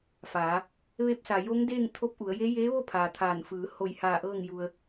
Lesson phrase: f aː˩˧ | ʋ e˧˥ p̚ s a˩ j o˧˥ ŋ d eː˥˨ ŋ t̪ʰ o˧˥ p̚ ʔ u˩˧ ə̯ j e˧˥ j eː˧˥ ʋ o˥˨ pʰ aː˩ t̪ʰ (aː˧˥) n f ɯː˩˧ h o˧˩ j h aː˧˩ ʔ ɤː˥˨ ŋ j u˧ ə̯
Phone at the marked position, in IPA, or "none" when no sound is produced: aː˧˩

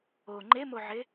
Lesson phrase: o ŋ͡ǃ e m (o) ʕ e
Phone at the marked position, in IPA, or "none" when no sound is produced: o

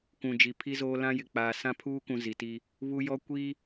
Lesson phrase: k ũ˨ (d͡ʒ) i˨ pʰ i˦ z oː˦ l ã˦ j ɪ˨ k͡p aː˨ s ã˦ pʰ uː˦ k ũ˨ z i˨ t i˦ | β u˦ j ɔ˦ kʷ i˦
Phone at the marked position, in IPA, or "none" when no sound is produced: d͡ʒ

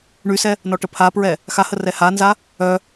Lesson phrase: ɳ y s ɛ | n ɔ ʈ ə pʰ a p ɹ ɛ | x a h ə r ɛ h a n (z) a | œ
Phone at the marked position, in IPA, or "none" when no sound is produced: z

